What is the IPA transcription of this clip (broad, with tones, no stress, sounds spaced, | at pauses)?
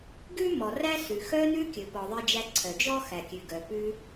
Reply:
ɡ ʉ˥ m ɔ˩ r æ˥ s ʉ˩ x œ˧ n ʉ˧ kʲ ɵ˩ p ɔ˩ ðˤ i˧ d͡ʒ æ˧ ǀʰ œ˩ d͡ʒ ɔ˥ x æ˩ kʲ ʉ˩ ɡ œ˩ p ʉ˧